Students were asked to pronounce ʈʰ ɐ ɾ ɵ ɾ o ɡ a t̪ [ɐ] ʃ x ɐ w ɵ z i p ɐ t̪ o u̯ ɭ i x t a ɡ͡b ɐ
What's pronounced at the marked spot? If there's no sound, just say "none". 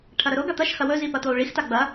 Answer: ɐ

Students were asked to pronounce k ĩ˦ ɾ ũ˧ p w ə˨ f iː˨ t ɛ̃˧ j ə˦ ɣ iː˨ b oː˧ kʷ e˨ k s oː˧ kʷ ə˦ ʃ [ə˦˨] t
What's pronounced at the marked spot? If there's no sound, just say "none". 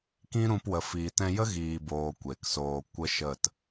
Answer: ə˦˨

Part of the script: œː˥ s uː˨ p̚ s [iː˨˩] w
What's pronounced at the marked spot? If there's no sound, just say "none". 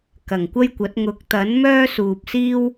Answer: iː˥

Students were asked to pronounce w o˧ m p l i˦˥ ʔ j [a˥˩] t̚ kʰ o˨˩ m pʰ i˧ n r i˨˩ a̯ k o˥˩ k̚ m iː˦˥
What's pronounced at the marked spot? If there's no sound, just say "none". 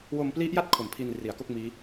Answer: a˥˩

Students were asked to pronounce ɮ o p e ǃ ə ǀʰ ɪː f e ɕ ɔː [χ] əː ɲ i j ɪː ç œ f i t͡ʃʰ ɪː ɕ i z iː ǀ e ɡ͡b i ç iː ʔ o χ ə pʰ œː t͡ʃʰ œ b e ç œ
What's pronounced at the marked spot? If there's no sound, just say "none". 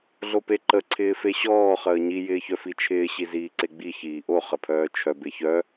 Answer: χ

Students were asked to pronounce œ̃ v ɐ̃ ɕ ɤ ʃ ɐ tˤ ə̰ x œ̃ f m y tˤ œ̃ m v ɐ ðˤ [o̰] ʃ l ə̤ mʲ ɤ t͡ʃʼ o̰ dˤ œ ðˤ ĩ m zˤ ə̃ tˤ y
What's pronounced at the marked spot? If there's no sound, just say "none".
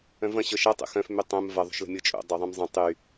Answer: o̤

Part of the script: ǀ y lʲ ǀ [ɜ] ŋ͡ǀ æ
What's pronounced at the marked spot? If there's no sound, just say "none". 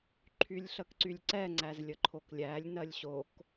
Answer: ɛ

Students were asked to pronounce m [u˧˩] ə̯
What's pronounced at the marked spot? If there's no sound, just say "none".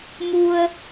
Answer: u˧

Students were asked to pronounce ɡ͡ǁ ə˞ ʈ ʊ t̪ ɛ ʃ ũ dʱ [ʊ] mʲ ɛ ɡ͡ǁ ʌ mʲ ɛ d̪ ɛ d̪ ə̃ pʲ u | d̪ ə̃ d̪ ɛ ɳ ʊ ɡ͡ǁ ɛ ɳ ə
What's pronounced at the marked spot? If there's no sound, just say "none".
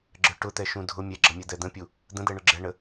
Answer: ʊ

